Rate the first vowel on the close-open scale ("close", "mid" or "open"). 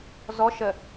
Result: mid